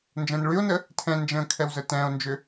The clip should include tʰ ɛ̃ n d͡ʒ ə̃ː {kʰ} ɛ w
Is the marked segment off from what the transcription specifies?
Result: no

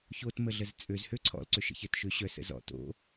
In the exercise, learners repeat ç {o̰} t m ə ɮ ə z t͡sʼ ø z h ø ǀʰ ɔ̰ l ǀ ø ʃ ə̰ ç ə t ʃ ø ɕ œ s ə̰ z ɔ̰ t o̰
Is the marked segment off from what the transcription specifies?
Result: yes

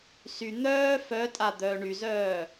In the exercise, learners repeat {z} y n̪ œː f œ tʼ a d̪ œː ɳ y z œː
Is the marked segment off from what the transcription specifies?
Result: yes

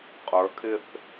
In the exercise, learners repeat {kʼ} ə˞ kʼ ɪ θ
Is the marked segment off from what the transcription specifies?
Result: yes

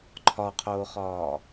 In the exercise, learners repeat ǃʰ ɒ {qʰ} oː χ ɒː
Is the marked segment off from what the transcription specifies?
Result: no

